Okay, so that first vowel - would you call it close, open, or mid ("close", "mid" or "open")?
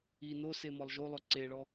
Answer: close